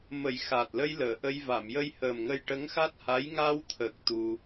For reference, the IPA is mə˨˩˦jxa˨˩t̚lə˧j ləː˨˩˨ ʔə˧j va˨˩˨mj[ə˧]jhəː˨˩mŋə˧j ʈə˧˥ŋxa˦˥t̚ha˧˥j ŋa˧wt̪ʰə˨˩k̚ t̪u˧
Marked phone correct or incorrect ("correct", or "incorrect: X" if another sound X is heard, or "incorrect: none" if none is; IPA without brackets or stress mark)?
correct